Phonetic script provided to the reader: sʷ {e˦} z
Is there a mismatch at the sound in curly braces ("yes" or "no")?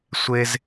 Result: no